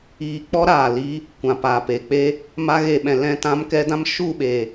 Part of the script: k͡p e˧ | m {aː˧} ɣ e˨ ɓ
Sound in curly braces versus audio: incorrect: a˧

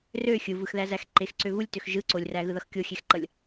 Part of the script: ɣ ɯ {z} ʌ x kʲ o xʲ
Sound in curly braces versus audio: incorrect: ð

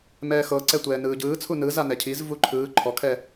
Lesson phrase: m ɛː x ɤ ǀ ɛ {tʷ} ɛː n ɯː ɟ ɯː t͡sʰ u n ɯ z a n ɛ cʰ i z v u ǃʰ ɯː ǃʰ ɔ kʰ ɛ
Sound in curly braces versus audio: correct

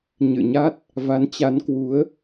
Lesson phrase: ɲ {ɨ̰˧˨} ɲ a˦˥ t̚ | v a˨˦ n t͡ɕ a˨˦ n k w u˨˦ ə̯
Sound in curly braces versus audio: correct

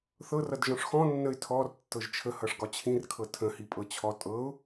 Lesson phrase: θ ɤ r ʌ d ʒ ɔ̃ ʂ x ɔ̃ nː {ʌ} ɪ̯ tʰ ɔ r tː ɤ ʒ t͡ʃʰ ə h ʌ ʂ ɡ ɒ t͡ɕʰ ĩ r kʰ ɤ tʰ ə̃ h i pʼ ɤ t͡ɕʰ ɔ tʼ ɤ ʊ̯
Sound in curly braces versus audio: incorrect: ə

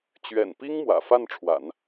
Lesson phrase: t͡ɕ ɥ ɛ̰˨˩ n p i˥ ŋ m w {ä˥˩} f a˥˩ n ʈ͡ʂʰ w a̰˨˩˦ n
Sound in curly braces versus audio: incorrect: ä̰˨˩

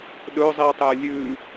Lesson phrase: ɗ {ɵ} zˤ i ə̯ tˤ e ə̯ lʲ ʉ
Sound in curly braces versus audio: correct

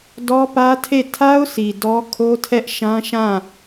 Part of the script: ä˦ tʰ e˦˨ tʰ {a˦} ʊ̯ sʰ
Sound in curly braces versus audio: correct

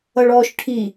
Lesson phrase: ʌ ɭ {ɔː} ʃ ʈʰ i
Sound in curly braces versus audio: correct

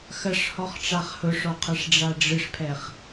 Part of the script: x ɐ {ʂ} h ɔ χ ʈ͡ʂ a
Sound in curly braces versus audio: correct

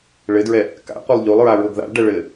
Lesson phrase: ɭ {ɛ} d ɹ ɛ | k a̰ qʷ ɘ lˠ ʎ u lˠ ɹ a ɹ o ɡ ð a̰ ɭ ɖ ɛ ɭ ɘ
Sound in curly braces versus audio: incorrect: ɘ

